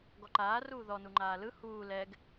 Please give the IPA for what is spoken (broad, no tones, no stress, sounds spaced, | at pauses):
ɡ ɔ ǃ aː r uː ð ɔ n u ŋ͡ǃ aː l ɯ h uː l ɛ ɡ